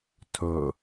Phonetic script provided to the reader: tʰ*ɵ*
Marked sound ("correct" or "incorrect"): correct